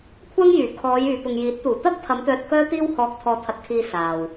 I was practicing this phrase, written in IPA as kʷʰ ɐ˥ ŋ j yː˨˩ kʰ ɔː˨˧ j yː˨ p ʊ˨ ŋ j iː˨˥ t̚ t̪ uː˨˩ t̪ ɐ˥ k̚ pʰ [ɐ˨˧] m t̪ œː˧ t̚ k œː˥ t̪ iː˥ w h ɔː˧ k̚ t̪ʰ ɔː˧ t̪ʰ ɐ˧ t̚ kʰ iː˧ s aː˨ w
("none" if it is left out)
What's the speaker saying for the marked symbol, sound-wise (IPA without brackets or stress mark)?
ɐ˨˧